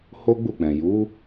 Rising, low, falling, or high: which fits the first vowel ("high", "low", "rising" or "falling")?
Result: high